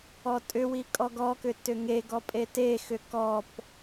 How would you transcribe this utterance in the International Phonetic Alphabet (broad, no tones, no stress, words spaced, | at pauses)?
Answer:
ɔtʼʏwi kʼɔɡɔkʏ tʏŋeɡɔ pʼetexʏ kɔp